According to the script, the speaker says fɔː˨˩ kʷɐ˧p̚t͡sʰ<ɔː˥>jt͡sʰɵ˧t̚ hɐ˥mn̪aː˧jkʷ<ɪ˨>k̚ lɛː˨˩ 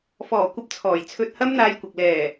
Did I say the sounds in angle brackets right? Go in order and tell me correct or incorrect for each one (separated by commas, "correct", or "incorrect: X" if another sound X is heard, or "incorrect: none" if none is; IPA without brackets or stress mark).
incorrect: ɔː˨˩, correct